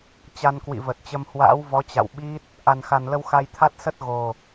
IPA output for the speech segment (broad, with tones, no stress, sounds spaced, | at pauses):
t͡ɕ a˧ n k w ḭ˧˨ v ə˨˩ t̚ t͡ɕ ə˧ m h w a̰ː˧˥ w v ɔ˨˦ t͡ɕ a̰˧˨ w ɓ i˦˥ t̚ | ʔ a˨˩ n x a˨˩ n l ə˧ w x a˧ j t̪ʰ a˦˥ t̚ s ə˦˥ t̚ ɣ o˨˩